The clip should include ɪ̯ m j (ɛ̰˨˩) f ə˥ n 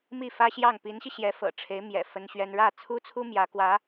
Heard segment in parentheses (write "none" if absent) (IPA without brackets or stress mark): ɛ̰˨˩